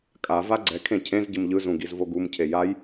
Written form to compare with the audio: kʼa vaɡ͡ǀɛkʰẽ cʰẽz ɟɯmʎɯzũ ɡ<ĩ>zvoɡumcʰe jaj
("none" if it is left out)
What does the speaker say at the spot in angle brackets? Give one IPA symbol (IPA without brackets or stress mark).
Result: i